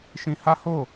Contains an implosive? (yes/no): no